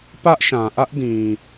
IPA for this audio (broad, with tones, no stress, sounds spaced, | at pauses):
p ä˦ ʔ ʃ ã˨ ʔ ä˦ ʔ d ĩ˨